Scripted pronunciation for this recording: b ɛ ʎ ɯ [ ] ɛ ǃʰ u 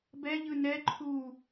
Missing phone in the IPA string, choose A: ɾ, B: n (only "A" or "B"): B